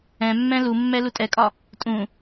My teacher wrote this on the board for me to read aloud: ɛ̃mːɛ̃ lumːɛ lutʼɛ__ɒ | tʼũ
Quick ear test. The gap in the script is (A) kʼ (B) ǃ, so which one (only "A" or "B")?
A